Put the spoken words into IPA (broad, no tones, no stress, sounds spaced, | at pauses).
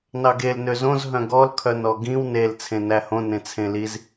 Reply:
n ɑ ɡ e l n ø z õ z ɦ œ̃ ɡ ɔ l kʰ œ n ɔ ɡ ĩ w n e l t͡sʰ ẽ n æ h õ n ẽ t͡sʰ ẽ l i z